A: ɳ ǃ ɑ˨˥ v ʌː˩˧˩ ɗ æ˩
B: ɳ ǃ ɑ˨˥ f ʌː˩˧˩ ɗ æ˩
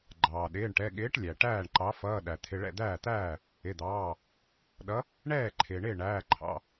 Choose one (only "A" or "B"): B